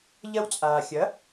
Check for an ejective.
present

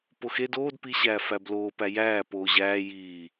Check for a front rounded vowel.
absent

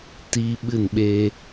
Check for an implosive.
present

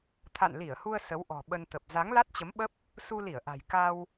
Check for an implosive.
present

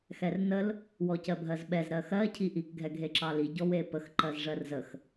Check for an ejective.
absent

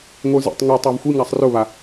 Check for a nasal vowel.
absent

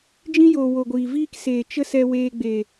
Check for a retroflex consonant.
absent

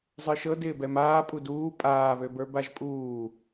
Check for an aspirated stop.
absent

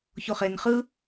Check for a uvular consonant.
present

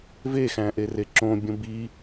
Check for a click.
present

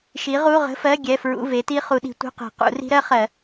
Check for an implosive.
present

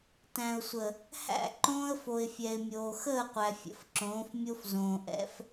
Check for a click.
present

